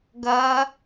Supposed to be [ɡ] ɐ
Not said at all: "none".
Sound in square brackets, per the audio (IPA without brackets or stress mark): ɡ